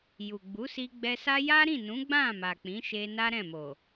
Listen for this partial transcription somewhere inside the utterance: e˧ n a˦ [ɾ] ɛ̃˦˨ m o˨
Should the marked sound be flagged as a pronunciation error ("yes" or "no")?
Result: no